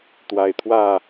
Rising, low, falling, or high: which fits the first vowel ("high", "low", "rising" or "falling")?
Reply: low